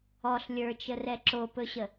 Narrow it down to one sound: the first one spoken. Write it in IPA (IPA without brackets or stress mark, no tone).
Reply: ɔ